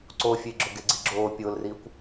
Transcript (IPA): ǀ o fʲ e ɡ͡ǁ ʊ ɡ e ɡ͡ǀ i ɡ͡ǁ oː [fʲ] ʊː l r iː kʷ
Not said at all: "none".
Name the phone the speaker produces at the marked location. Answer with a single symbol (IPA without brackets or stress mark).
pʲ